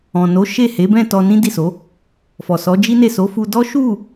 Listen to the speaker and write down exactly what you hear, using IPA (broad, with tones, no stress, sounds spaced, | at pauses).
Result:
ɔ̃˨ n o˨˦ ʃ e˦˨ h e˨˦ b ɛ̃˦˨ t ɔ˧ n ĩ˦ d i˦˨ s o˨˦ | f ɔ˨ s ɔ˨˦ d͡ʒ i˦ n e˦˨ s o˨˦ f u˧ d ɔ˦ ʃ u˦˨